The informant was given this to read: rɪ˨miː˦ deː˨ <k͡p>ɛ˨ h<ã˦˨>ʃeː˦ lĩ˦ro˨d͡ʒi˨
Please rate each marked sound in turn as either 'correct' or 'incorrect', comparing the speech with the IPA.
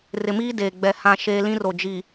incorrect, correct

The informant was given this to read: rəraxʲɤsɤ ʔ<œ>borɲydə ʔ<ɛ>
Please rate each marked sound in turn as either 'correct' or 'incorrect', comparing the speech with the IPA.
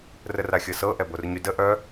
incorrect, incorrect

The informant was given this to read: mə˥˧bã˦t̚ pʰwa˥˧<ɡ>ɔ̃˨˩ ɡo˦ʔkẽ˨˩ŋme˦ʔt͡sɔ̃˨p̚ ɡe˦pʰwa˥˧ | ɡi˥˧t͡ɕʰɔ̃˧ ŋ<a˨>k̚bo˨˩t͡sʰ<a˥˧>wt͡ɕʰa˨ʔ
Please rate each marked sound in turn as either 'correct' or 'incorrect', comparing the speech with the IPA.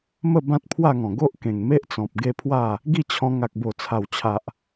incorrect, correct, incorrect

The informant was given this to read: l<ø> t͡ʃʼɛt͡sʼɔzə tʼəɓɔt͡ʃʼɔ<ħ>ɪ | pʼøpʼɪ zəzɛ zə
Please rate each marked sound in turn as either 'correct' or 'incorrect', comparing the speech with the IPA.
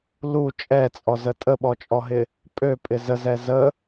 incorrect, incorrect

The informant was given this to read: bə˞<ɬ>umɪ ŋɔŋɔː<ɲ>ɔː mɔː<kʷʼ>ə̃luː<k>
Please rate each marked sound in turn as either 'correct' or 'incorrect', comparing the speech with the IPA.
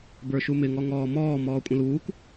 incorrect, incorrect, correct, correct

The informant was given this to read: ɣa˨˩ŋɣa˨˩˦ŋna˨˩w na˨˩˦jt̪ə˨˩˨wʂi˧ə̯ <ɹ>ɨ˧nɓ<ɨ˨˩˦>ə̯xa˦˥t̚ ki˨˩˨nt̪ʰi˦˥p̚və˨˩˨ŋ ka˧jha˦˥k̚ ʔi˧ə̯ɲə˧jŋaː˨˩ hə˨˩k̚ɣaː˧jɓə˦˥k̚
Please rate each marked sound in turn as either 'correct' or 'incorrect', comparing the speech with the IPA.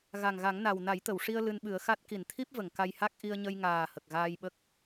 incorrect, correct

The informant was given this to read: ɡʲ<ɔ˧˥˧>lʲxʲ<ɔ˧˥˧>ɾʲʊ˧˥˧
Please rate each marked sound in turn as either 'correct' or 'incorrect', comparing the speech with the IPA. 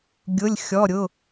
incorrect, correct

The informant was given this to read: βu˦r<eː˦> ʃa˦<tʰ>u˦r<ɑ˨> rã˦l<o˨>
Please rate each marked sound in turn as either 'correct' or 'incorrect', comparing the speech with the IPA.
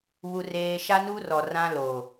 correct, incorrect, incorrect, correct

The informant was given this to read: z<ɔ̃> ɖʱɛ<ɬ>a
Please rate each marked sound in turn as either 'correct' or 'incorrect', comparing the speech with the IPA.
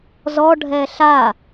incorrect, correct

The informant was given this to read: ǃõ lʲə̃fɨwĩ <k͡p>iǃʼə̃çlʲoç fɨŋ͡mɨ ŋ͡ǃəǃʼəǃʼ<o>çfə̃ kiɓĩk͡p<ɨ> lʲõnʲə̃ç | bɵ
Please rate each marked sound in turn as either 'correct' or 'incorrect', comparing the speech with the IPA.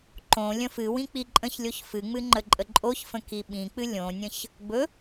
correct, correct, correct

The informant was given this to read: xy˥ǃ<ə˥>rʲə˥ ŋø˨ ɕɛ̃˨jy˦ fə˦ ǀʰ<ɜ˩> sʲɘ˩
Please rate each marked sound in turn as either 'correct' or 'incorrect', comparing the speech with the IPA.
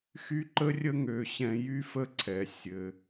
correct, incorrect

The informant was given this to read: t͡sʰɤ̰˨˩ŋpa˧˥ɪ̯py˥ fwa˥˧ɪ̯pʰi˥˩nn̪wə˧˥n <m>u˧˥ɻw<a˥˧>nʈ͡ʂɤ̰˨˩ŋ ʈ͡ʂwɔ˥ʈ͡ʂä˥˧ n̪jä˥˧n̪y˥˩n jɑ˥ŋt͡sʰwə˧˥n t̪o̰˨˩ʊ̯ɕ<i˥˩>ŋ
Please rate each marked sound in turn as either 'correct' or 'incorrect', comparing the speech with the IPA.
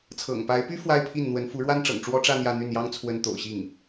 incorrect, incorrect, correct

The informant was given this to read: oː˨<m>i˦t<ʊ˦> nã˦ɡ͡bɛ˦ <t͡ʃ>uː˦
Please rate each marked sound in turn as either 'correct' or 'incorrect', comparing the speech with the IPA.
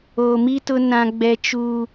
correct, correct, correct

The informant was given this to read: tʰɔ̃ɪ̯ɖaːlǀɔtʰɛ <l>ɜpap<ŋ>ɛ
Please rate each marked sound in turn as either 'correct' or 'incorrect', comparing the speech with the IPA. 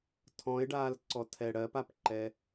incorrect, incorrect

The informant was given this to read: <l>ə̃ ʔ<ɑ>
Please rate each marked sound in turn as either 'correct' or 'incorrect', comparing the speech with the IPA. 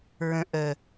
incorrect, incorrect

